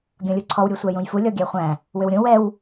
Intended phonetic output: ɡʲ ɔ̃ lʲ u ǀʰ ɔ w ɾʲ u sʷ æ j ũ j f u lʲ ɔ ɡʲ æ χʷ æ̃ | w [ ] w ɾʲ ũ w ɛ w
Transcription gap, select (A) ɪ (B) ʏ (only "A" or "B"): B